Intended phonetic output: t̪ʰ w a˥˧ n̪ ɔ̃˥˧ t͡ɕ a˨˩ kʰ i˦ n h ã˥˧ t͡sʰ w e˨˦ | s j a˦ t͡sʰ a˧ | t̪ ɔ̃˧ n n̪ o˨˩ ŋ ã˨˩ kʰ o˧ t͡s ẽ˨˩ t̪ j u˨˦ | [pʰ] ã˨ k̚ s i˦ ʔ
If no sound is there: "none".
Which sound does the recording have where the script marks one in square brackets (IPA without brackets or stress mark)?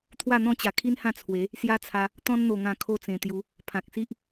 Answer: pʰ